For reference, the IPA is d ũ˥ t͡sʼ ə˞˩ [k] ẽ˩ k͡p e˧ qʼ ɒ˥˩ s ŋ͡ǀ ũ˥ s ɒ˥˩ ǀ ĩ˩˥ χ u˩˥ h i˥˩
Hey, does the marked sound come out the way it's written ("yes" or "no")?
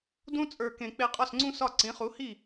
yes